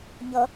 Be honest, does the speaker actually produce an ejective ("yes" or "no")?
no